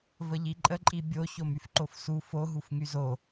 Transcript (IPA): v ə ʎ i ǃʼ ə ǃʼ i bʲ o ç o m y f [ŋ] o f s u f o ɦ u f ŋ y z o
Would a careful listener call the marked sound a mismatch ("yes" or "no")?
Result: yes